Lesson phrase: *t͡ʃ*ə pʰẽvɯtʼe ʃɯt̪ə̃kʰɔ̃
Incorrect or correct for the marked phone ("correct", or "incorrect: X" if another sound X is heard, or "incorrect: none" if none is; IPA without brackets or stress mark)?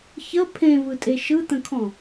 incorrect: ç